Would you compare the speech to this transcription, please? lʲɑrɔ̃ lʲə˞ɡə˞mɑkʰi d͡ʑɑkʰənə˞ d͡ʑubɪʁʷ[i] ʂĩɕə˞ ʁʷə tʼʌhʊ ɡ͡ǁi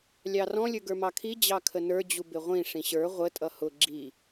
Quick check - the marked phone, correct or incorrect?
incorrect